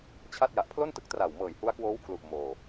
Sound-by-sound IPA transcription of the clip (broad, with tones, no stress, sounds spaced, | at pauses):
t͡ɕʰ a˥˩ t̚ j a˨˩ ʔ pʰ l o˥˩ n t ɯ˦˥ k̚ t r a˨˩ w m ɤː˨˩ j h u˦˥ a̯ k w oː˦˥ w kʰ l u˨˩ ʔ m oː˧